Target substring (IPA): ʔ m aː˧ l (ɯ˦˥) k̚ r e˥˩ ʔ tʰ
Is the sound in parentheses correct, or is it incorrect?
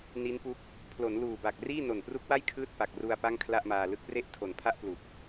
correct